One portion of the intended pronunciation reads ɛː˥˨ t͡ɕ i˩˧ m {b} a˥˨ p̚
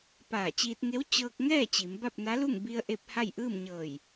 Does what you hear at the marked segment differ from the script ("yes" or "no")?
no